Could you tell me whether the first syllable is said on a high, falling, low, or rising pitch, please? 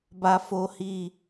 high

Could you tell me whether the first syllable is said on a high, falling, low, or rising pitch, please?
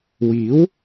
rising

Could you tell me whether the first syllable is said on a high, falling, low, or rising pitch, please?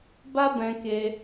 high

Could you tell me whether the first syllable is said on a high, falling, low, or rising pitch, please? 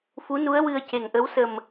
rising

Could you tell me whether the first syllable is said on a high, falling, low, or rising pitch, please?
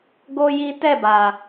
high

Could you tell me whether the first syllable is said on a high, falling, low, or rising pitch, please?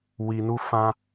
low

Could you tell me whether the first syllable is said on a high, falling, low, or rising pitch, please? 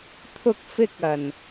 high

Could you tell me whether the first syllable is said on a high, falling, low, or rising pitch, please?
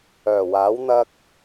low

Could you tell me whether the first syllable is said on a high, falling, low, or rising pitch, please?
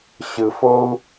low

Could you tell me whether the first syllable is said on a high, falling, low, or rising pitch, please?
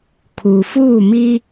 low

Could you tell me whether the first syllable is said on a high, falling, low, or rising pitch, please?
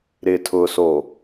low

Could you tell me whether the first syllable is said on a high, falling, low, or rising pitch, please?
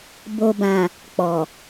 low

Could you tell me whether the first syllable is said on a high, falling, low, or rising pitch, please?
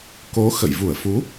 rising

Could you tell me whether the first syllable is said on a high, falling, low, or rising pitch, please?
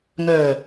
low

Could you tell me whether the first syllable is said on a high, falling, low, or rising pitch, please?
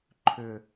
low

